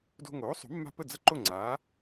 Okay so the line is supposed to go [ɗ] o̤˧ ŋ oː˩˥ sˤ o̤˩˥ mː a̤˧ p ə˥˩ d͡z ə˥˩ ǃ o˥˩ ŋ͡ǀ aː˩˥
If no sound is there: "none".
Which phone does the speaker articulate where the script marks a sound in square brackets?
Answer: d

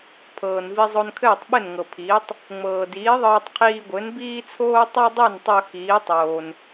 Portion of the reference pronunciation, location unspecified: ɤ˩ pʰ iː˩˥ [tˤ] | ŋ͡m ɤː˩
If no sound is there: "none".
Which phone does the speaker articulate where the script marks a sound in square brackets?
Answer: tˤ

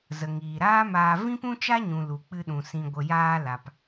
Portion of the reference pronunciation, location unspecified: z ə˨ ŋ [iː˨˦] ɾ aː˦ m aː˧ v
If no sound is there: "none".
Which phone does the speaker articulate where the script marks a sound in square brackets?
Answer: iː˨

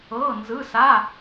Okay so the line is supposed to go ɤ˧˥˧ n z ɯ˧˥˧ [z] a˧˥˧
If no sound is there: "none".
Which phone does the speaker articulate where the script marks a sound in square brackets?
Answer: s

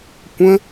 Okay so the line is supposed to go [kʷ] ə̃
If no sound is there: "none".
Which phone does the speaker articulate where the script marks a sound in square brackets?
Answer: kʷ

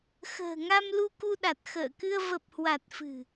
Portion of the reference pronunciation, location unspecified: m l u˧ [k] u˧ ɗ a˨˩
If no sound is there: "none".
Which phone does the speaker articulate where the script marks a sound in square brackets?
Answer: k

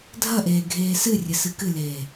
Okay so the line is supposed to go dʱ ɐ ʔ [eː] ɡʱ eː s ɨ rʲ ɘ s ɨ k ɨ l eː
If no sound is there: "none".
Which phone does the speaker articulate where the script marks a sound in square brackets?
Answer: eː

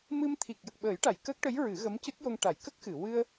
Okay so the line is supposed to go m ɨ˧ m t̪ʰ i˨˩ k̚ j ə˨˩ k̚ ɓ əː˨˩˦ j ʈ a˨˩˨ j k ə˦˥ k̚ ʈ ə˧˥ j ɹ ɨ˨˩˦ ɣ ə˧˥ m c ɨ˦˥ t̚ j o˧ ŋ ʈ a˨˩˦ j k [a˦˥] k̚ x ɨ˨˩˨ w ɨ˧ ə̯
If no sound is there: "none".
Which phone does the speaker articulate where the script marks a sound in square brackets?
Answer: ə˦˥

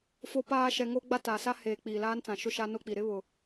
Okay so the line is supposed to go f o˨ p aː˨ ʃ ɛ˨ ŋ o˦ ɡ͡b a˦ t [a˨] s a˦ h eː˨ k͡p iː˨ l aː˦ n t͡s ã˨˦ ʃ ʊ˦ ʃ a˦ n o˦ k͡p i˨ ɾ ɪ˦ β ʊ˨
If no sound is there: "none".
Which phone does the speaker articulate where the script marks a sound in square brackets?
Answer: a˨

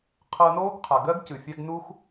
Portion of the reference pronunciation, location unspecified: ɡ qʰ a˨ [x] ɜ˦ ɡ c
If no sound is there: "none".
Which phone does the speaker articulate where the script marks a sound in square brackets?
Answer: ɡ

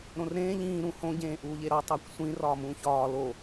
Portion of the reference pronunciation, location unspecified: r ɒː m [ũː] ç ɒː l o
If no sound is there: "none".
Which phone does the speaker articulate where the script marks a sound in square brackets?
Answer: ũː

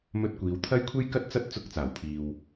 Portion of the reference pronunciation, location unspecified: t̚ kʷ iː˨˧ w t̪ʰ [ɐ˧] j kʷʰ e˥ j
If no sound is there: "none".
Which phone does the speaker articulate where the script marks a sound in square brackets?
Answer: ɐ˥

